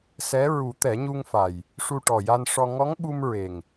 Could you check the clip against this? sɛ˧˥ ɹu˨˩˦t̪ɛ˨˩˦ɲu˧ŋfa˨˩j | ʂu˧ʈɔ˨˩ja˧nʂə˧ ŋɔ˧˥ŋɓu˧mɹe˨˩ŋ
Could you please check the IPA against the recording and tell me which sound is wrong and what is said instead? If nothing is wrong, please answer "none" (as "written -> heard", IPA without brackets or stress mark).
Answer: ə˧ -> ɔ˧